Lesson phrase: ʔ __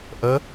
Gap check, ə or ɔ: ə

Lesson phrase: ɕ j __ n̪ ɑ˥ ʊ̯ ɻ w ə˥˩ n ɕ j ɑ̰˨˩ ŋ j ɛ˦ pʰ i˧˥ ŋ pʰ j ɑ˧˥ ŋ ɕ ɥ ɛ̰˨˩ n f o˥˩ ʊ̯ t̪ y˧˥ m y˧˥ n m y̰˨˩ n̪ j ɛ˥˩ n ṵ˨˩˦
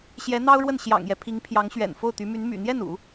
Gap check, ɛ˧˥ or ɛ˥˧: ɛ˧˥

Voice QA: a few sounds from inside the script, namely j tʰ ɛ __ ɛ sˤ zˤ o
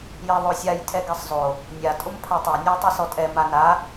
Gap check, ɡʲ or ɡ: ɡ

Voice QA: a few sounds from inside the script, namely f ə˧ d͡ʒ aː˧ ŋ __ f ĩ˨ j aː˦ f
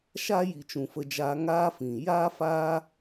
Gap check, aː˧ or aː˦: aː˦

